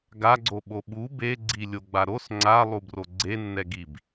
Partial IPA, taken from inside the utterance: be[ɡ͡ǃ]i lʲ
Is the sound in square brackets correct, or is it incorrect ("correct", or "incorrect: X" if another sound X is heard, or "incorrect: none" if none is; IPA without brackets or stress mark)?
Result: incorrect: ɡ͡ǀ